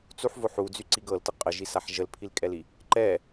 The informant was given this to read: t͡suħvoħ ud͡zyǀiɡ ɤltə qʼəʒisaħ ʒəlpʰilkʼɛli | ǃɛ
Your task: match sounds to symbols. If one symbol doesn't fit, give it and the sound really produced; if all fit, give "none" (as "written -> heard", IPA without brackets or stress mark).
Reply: none